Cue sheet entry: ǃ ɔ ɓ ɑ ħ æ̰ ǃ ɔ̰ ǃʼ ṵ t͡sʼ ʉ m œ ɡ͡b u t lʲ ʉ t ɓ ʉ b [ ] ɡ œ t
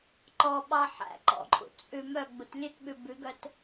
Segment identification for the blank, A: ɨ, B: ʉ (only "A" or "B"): B